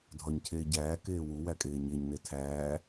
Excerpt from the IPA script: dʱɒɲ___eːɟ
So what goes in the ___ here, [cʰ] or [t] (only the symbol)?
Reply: cʰ